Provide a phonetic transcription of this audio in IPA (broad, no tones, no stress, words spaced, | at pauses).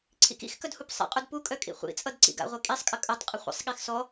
ǀʰḭkḭxkœd hupsˤḭqʼud pukʼœ kʼḭχʷḭt͡sʼʌd ǀḭɡa̰ʁʷi kʼisˤkʼə kʼœtˤqʼə χʷə̰sˤɠix sɔ